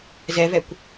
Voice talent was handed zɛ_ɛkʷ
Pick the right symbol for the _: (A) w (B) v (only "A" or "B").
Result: B